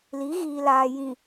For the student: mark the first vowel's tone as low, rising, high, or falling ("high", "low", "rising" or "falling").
rising